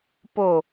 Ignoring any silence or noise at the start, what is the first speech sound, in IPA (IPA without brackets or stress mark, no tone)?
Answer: p